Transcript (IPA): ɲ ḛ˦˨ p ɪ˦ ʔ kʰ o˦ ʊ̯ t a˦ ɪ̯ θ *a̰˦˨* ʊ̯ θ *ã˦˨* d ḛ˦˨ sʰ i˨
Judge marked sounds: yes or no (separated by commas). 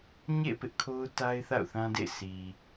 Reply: yes, no